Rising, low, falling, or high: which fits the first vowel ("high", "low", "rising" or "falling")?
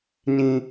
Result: low